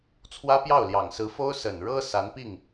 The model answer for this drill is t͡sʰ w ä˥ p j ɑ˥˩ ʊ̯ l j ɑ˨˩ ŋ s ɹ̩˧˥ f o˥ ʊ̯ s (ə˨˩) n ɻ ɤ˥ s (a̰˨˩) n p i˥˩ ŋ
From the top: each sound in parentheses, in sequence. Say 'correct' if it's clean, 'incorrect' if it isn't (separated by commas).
correct, incorrect